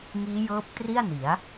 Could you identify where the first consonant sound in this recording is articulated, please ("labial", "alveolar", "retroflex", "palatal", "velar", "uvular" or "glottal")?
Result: velar